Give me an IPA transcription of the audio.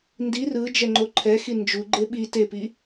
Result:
ndi rɯ d͡ʒɛŋ͡ǃoǃʰɛxi nd͡ʒuɡ͡ǃe ɓi tepi

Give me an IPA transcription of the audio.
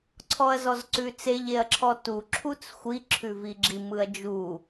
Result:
ǀʰɔɐ̯zɔzǀʉt͡seʎ eɐ̯ǁʰɔtu ǁʰut͡sxʷi ǁʰʉviɡ͡ǁi mɯɐ̯d͡ʒu

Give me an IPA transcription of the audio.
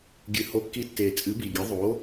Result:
ɡʲɨ˨˩ ho˨˥kːi˨˥tːeː˨˩ t͡sʼɨ˨˥bi˨˩ɡʲɨ˨˥ ðˤo˨˥

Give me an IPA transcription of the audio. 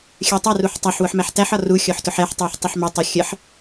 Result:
xʲɜtˤæruħ tˤæħ wʊħmæħtæħɒ ru xʲɔħtʊħɛħtˤɛħ tˤɪħmətˤʌ xʲəħ

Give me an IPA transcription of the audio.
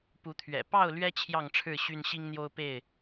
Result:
pu˨˦t̪ʰɥɛ̰˨˩ pɑ˥˨ʊ̯lɥɛ˦ t͡ɕʰjɑ˥˨ŋʈ͡ʂʰɻ̩˥˨ɕy˦n ɕi˦ŋn̪jo˦ʊ̯pe˥˨ɪ̯

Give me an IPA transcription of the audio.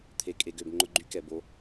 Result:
t̪ʰe˨kʼe˨ɡø˨b ŋ͡ǃʊ˦ɡ͡ǃy˦kɛ˨bo˦

